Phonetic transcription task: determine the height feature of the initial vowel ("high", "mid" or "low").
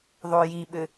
mid